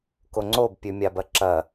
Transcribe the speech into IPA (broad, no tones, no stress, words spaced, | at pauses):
koŋ͡ǀob pʲʉmʲabɐǁɐ